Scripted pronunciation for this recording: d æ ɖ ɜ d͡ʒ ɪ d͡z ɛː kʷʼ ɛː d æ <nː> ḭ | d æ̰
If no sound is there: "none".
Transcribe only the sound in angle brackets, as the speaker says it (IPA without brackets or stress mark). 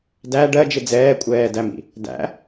m